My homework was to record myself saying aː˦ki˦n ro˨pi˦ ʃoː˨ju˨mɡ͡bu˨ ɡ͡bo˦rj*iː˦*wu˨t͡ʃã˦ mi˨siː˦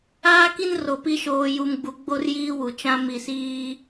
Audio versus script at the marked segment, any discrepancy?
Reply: no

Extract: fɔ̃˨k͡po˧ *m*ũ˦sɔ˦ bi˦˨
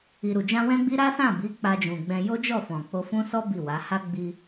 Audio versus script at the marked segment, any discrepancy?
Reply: yes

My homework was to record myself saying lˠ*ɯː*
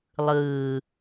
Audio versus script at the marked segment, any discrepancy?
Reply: no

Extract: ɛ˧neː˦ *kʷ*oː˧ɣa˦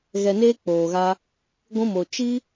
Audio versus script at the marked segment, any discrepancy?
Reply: yes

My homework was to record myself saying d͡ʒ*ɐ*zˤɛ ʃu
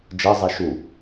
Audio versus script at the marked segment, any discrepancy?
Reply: no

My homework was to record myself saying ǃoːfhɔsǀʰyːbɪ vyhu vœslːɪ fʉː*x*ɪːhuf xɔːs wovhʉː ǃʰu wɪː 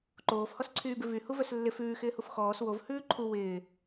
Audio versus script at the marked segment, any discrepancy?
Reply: no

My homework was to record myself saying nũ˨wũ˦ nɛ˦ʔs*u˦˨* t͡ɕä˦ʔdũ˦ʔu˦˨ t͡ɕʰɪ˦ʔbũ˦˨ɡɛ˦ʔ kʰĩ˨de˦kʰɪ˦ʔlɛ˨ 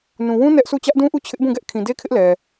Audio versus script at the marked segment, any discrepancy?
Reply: no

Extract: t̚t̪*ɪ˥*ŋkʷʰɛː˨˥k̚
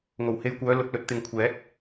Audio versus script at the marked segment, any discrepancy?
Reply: yes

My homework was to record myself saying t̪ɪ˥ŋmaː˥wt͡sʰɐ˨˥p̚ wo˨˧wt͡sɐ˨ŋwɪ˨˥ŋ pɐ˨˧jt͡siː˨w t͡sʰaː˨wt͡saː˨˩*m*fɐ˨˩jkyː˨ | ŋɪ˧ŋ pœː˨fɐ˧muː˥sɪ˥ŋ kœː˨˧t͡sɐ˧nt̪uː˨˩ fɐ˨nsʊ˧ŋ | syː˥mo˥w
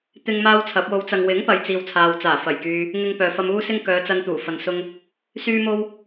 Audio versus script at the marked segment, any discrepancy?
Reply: yes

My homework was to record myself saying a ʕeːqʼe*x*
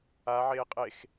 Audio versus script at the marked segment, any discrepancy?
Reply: no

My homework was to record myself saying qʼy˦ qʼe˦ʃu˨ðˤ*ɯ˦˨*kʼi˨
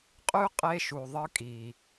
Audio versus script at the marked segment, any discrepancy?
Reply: yes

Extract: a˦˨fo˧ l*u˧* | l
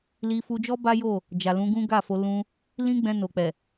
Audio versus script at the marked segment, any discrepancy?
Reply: yes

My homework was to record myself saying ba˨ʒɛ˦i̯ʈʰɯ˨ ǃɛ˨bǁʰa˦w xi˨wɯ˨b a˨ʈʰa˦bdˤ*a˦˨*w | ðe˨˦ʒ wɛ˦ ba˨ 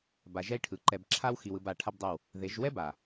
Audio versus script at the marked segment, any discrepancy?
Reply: no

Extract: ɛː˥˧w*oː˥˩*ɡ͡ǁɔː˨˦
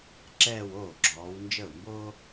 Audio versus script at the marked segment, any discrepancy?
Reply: no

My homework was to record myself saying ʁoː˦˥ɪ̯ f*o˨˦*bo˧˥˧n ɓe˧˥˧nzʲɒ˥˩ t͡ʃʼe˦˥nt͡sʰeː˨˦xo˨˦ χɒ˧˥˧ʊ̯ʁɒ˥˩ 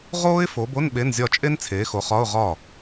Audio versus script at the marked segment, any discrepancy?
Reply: no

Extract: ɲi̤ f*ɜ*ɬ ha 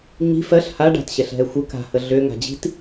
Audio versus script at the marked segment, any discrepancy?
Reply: no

